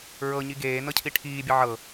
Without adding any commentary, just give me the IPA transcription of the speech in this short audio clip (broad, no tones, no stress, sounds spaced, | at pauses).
ɹ ɤ ɲ i ɡ eː n ɤ cʰ i ʈʰ iː bʲ ə ʕ ɤ